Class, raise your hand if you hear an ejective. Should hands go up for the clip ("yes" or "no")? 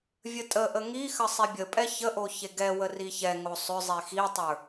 yes